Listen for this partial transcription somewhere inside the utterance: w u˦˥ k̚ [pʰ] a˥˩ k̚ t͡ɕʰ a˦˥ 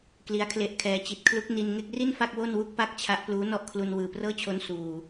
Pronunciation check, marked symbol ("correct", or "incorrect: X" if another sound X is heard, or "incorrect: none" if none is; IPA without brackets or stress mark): incorrect: p